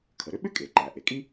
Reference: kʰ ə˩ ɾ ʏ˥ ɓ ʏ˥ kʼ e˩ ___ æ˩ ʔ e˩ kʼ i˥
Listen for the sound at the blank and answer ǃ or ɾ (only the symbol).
ǃ